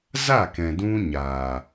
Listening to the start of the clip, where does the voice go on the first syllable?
falling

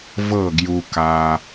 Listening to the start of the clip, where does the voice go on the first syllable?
falling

